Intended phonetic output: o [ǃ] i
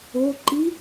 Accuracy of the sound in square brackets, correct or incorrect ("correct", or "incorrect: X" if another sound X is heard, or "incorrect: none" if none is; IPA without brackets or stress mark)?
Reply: correct